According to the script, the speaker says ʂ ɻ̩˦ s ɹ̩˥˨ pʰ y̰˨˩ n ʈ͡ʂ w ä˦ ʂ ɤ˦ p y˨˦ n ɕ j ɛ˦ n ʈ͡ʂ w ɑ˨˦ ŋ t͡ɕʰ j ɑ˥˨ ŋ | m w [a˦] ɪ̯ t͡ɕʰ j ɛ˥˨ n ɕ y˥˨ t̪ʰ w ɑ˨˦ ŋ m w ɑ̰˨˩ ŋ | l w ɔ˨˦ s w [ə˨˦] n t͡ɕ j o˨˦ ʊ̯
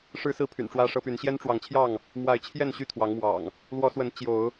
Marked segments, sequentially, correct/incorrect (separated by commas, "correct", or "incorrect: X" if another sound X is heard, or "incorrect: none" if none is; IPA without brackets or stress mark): incorrect: a˨˦, correct